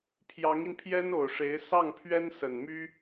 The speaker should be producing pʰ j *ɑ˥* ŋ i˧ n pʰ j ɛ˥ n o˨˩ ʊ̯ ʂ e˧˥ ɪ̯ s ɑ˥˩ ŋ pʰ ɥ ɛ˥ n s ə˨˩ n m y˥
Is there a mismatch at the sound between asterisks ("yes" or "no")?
yes